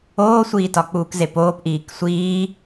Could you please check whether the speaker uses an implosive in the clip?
no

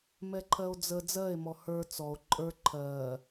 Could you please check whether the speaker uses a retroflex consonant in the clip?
no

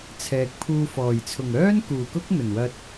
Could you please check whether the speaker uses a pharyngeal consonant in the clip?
no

